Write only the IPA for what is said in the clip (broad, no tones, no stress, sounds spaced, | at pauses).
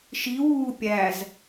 ʃ i w uː pʲ æ z